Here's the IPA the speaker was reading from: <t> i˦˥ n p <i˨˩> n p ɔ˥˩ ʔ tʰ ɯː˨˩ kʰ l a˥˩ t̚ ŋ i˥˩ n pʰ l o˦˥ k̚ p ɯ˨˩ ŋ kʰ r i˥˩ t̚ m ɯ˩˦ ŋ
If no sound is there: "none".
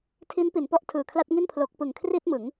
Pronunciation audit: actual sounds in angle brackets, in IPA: tʰ, i˩˦

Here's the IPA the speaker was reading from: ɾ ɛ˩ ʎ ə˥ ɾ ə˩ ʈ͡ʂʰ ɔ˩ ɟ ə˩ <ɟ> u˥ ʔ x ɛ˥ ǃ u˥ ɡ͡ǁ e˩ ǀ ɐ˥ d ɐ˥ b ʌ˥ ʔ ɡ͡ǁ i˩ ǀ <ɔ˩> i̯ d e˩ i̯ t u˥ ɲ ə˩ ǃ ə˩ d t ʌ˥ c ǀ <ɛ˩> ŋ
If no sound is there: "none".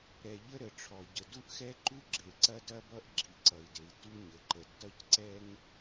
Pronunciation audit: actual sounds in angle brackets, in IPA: d, ʌ˩, ɛ˥

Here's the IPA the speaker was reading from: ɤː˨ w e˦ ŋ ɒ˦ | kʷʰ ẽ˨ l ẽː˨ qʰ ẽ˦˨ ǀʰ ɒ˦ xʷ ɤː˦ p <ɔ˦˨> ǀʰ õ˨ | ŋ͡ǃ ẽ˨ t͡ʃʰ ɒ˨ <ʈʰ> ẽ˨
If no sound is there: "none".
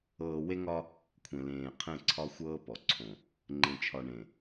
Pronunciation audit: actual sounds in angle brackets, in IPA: ɔ˨, ɳ

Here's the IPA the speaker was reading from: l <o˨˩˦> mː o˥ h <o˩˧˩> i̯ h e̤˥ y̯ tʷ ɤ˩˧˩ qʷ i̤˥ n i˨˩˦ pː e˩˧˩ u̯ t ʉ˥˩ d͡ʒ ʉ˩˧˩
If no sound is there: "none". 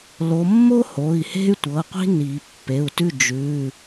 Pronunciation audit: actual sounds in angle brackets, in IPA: o˨˦, o˩˧˩

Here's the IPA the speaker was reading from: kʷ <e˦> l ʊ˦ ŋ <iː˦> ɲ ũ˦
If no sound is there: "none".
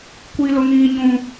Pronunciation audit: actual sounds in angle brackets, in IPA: i˦, iː˦

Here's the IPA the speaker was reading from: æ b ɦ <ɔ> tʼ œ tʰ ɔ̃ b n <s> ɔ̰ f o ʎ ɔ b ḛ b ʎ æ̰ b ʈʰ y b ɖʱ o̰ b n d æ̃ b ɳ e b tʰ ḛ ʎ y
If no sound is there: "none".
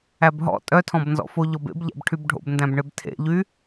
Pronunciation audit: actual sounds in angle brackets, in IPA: ɔ̰, z

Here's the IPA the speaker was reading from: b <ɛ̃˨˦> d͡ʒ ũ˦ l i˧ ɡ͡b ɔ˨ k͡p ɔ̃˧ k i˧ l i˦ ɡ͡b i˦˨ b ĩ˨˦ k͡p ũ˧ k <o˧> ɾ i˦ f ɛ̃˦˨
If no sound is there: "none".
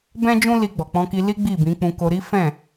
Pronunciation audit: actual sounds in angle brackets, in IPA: ɛ̃˦, o˧

